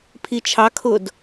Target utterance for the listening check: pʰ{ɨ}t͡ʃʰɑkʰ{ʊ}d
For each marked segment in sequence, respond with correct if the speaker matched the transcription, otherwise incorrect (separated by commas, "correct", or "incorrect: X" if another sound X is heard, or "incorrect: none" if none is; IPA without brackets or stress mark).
incorrect: i, correct